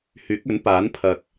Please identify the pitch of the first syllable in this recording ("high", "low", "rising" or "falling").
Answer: rising